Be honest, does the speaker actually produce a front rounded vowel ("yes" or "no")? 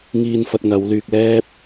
yes